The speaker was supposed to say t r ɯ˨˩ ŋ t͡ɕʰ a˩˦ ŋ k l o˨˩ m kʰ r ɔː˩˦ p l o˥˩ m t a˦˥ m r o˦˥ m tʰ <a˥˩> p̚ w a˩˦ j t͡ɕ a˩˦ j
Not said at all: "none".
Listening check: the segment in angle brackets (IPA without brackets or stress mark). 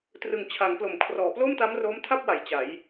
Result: a˥˩